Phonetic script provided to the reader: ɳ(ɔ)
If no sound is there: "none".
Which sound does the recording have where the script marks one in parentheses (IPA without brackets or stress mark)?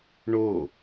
o